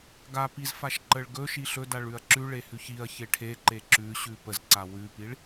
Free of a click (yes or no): no